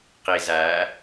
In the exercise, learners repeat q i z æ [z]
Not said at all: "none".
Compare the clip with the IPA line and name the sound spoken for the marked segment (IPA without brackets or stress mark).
none